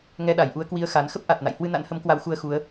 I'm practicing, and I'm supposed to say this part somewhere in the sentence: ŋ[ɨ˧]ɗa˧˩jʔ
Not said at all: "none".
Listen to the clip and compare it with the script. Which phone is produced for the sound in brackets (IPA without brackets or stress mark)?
ɛ˧